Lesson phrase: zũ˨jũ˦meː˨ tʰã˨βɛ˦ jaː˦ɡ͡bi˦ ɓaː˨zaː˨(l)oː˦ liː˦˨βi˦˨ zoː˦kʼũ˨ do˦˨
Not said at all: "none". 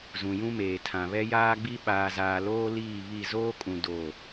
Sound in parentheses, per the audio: l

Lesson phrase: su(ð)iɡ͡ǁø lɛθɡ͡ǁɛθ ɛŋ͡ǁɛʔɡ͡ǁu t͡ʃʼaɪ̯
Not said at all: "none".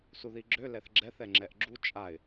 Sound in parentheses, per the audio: ð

